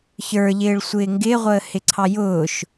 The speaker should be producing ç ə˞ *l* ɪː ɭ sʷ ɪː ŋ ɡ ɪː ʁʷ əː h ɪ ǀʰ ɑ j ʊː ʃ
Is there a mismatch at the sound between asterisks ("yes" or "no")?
yes